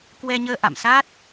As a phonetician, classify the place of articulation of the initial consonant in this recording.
velar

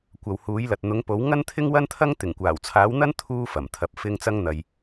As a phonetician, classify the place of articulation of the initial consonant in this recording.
velar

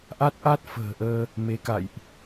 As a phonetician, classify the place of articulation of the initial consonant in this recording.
glottal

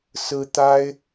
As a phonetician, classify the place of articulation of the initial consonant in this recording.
alveolar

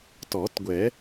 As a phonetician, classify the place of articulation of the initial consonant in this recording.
alveolar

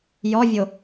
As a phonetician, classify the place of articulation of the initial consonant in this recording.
palatal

